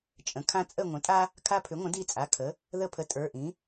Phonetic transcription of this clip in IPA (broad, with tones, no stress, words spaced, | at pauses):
t͡ʃʼə̃˩˥ kʰã˦ t͡sʼə˦˨ŋʷə̃˩˥tʼa˦ | kʰa˦pʰʏ˩˥ŋʷə̃˩˥ di˦˨t͡sʼa˩˧˩ kʰə˩˥ | ðə˦˨pʰə˩˥ tʼə˞˩˧˩ʔĩ˩˥